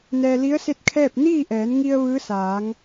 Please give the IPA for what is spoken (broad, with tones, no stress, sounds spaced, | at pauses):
n ɛː˧ l i˧˥ ə̯ s e˥˨ t̚ kʰ ɛː˥˨ p̚ n iː˥˨ ʔ ɛː˩˧ n ŋ i˧ ə̯ ʋ ɯː˧˥ s aː˩˧ ŋ